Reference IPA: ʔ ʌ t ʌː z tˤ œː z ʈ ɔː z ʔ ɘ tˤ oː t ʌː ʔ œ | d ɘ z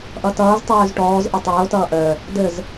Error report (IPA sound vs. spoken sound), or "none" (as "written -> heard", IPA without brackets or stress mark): none